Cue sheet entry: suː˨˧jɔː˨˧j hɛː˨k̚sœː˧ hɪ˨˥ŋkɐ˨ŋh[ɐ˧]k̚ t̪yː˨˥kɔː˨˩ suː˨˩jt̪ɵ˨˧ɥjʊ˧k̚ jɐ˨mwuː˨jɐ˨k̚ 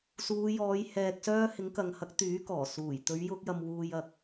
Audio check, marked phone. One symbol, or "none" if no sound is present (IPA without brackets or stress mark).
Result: ɐ˨˥